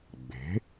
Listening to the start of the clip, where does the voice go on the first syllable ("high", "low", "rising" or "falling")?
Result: rising